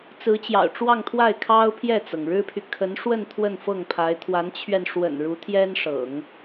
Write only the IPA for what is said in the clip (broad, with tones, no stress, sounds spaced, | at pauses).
t͡s ɹ̩˧˥ t͡ɕ j ɑ̰˨˩ ʊ̯ ʈ͡ʂ w ɑ˥˧ ŋ t̪ʰ w a˥˩ ɪ̯ kʰ ɑ˥ ʊ̯ pʰ j ɛ˥˩ t͡s ɤ˩ ŋ ɻ ɻ̩˥ pʰ y˨ kʰ ə˧˥ n ʂ w ə˥˧ n t̪ʰ w ə˥˧ n f ɤ˥˩ ŋ pʰ a˧˥ ɪ̯ t̪ʰ w a˧˥ n t͡ɕʰ ɥ ɛ˧ n ʂ w ə̰˨˩ n ɻ u˧˥ t̪ʰ j ɛ˥ n ʂ ɤ̰˨˩˦ ŋ